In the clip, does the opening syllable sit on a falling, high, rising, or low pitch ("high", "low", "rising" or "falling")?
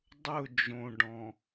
falling